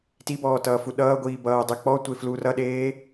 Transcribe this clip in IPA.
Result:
t i b ɔː t ʌː f u ɗ ʌː ɡʷ iː b ʌː dˤ ɛ k͡p ɔ tʷ e f l u r ʌ ɗ eː

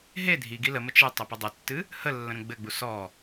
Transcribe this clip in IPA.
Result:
ɦ e dʱ i ɡ i l ə m ə t͡ʃ ɨ tˤ ɘ p ə dˤ ɘ tː ɨ | h ə lː ə̃ ɾ ə̃ ɡ͡b ɘ ɡ͡b u s ɔ

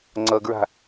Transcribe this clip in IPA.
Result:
ŋ͡ǀ ʌ ɡ ɹ a̤

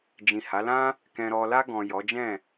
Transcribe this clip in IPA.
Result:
d͡ʒ ĩ˨ h a˨˦ l ã˦ | k ɛ̃˨ ɾ ɔ˨ l a˧ ɡ ɔ̃˨ j ɔ˨˦ d͡ʒ ɛ̃˦˨

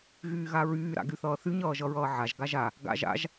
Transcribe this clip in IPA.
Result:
ɣ yː ɣ a ɹ yː ɾ a̰ ɡ y θ ʌː θ y ɲ ʌː ʒ ʌ ɹ ʌː ʕ a ʒ ɡ a ʒ a | ɡ a̰ ʒ a̰ ʒ

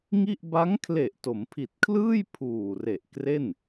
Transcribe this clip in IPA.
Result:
ŋ i˥˩ ʔ b a˦˥ ŋ kʰ l e˨˩ ʔ t o˩˦ m pʰ i˨˩ t̚ kʰ l ɯː˥˩ j pʰ uː˨˩ r e˨˩ ʔ k r e˥˩ n

